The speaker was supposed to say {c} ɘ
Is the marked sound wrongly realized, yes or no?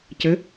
no